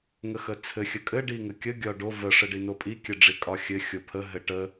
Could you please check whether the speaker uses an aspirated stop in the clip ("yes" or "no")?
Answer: yes